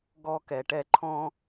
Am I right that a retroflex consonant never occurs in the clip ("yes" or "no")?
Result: no